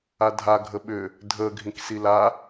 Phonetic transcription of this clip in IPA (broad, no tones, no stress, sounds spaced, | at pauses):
a dʱ a ɡʱ ə ɓ ʏ | dʱ ə ɡʱ ĩ k s i l a